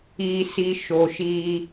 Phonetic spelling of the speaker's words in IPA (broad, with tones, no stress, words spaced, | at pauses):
iː˨si˨ ʃo˨ʃiː˦